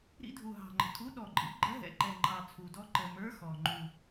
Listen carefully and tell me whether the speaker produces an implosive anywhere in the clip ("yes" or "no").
yes